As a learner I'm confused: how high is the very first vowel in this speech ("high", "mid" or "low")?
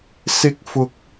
high